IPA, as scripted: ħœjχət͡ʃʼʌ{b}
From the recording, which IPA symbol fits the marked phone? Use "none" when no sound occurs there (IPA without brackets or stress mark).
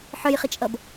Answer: b